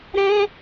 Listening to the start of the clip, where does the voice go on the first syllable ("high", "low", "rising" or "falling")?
high